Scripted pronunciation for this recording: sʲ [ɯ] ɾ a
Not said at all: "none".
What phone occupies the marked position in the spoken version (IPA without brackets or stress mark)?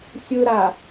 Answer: ɯ